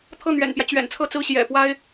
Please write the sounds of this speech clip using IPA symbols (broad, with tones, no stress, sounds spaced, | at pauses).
t̪ʰ ɤ˥˩ n̪ ɥ ɛ̰˨˩ n p j ä˦ t͡ɕ ɥ ɛ̰˨˩ n t͡sʰ ɤ˥˧ t͡s ɹ̩˥˩ ɕ j ɛ̰˨˩ p w a˥ ɪ̯